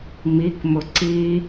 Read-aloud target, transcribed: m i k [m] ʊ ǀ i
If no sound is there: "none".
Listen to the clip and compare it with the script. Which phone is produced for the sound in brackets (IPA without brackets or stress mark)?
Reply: m